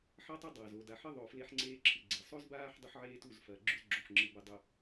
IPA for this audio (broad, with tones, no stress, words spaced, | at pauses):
ħɐ˦tˤɵ˦dˤɐː˨z o˨da˨ ħɨ˦ðˤo˨ fle˦ħŋ͡ǀeː˦ǁʰɨ˨ɡ͡ǀe˨ sˤo˦zbaː˦ħ dˤu˦ħʕeː˦tu˦˨z fɐː˨ɡ͡ǁʉ˦zɡ͡ǁo˨ħŋ͡ǁɨ˨ bɨ˨dˤɵ˨